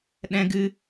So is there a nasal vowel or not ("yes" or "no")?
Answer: yes